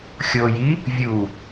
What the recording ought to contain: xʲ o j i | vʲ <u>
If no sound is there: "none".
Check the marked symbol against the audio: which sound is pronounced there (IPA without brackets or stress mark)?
u